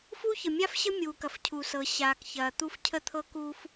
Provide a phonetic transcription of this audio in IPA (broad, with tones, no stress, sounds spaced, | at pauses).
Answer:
f uː˥ ç ə˩ mʲ a˥ f ɕ ə˥ mʲ uː˩ k ɐ˩ f cʰ u˩ s ɤ˩ ɕ aː˩ k ç ɐː˩ t̪ u˥ f cʰ ə˥ t̪ʰ ɤ˥ k u˥ f